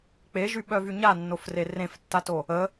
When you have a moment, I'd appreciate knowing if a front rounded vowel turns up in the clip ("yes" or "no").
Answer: yes